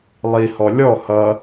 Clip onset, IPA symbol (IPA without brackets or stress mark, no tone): lˠ